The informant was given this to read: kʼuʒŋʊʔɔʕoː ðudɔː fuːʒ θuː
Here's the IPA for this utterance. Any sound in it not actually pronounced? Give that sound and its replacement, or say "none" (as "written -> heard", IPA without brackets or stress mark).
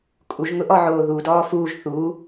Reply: none